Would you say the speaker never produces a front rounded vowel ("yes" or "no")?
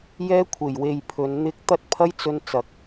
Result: yes